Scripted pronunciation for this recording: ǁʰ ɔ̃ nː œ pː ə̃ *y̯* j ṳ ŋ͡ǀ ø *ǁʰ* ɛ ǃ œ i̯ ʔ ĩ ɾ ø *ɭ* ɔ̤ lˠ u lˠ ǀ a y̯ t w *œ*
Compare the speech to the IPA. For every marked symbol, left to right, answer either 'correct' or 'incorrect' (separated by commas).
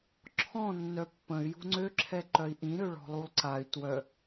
correct, correct, correct, correct